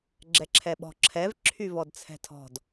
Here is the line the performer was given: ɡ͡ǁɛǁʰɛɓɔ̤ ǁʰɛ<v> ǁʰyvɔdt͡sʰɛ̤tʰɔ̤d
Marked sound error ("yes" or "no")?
no